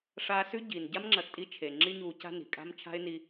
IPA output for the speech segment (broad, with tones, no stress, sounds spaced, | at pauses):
ʂ aː˧ s ʉ˦ ɟ i˨ n ɟ a˦ m ŋ͡ǁ ɐ˨ x tʼ i˧ t͡ʃʰ e˨ ŋ͡ǁ i˧ ɲ uː˨ c a̤˧ n i̤˨ kʼ a̤˦ m t͡ʃʰ a̤˦ ɪ̯ n i˧